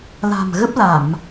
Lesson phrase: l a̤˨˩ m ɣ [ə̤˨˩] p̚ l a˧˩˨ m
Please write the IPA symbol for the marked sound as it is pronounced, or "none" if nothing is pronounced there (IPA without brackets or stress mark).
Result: ə˦˥